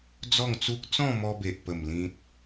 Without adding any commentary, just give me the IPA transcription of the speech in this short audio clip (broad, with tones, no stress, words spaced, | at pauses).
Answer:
d͡zɔ˥˧ŋt͡su˦k̚ t͡sɔ̃˥˧mɔ˧be˨ʔpə˨˩m lĩ˦t̚